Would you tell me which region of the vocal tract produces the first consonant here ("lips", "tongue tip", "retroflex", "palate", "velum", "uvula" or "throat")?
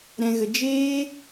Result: tongue tip